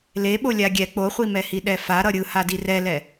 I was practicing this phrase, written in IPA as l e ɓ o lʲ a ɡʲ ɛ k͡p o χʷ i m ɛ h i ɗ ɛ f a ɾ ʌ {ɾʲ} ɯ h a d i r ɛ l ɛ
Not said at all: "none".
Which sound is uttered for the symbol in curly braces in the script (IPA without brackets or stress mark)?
ɾʲ